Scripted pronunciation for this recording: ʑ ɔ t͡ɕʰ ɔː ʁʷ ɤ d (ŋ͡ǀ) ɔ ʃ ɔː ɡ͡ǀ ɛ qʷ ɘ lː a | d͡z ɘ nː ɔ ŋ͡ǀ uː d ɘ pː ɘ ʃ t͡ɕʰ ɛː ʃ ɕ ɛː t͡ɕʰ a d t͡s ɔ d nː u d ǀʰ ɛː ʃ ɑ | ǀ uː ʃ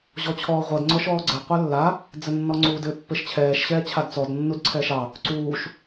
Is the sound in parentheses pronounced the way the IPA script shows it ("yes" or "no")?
yes